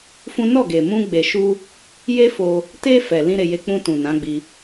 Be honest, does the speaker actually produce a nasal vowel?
yes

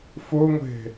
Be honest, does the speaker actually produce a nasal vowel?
no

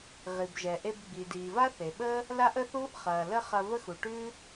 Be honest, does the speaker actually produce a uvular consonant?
yes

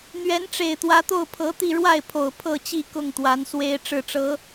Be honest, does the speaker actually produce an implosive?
no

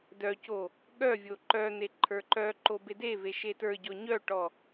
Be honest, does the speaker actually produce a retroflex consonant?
yes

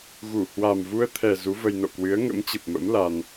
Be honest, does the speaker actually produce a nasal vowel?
no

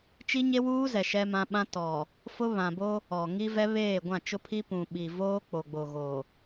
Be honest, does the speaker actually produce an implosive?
yes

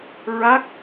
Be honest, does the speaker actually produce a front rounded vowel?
no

